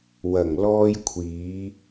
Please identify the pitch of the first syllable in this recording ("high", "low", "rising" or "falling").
low